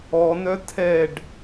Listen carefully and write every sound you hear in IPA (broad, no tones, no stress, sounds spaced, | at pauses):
ɔ n œ tʰ ɛ ɖ